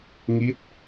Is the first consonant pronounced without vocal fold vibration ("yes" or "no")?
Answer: no